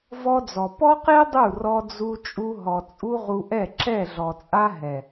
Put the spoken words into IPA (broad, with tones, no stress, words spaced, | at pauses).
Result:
vɔ˦d͡zɔ˨ pɔ˦qe˦ dˤu˦˨rɔ˧d͡zu˧ t͡ʃʼu˧ɦɔ˨t͡sʼu˦ ʁu˧ʔɛ˦˨ ǁɛ˦˨ɮɔ˨t͡sʼa˦ ɦɛ˨